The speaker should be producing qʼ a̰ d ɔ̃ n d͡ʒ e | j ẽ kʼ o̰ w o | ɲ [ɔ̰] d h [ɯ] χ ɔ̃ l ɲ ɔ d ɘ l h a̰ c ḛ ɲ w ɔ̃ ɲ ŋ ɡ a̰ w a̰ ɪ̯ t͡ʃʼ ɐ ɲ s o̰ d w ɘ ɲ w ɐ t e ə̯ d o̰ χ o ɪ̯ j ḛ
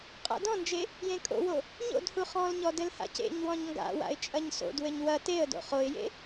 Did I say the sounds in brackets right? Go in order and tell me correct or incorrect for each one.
incorrect: o̰, incorrect: u

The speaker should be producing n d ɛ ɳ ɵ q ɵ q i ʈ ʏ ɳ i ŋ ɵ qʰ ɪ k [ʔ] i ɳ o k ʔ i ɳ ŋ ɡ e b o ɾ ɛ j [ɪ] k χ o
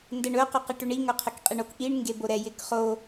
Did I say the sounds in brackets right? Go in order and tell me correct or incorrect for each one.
incorrect: qʼ, correct

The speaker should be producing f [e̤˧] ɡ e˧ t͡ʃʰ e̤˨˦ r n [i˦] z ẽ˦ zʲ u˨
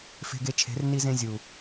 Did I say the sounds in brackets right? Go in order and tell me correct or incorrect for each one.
correct, correct

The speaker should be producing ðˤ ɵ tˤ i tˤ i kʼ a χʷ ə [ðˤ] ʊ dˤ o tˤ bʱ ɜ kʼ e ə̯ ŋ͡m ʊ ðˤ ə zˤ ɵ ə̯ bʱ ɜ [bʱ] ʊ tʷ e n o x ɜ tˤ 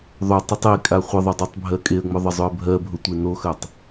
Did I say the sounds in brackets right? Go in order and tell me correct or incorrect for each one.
correct, correct

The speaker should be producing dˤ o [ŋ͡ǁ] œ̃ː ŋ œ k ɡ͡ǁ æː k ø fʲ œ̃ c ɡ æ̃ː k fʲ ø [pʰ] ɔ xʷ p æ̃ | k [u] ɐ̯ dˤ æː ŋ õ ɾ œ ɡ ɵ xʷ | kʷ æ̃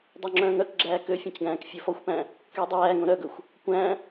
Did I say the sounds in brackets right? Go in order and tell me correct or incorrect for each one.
correct, incorrect: f, incorrect: y

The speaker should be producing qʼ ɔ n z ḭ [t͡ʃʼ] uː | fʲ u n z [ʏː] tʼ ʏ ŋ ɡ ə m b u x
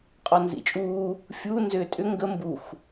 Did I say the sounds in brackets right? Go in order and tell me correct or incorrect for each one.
correct, correct

